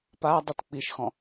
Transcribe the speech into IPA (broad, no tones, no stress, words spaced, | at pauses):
padˤɯt k͡piʃxɔ̃